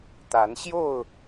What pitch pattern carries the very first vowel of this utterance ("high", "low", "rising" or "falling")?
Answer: rising